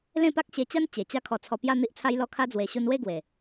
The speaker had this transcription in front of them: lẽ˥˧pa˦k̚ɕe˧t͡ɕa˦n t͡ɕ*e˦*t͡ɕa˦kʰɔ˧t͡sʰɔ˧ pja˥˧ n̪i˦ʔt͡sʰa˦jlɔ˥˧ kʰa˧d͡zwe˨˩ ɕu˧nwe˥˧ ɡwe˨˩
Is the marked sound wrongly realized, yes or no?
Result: yes